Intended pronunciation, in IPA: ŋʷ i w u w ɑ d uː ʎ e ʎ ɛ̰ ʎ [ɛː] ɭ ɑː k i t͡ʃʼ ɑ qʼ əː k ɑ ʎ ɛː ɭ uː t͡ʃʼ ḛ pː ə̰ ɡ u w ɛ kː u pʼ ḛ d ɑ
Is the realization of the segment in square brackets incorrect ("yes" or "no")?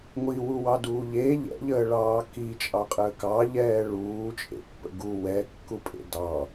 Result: yes